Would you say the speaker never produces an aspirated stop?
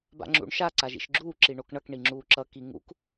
yes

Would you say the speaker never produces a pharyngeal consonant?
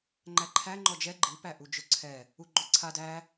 yes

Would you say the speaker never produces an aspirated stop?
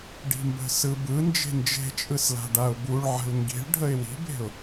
yes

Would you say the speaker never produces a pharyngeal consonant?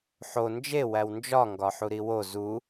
no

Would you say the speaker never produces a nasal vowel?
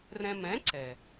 no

